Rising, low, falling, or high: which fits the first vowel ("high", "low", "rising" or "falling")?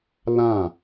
falling